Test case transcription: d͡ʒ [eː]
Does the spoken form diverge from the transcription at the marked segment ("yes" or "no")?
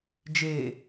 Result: no